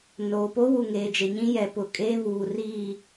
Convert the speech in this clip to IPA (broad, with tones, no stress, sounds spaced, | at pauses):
n oː˨ p oː˦ w u˨ ŋ eː˨ d͡ʒ e˨ ɲ ĩ˦ j ɛ˨ p ʊ˨ kʼ eː˦ β uː˨ r iː˦˨